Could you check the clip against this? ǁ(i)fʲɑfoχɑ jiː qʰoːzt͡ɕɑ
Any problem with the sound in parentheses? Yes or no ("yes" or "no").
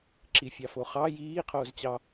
no